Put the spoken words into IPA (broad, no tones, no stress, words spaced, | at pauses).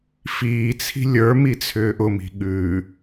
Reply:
fiːt͡sʰi̤ lʲə˞ mit͡sʰʏːʔʊmi̤ ɠʉ